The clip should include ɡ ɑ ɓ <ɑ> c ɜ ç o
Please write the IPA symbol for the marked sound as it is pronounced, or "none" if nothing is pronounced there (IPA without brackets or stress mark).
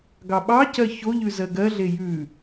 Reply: ɑ